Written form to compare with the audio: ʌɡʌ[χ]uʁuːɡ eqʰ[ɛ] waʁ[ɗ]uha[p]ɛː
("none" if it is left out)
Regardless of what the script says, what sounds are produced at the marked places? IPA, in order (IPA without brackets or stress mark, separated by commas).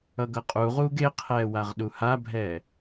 qʼ, ɛː, ɗ, bʱ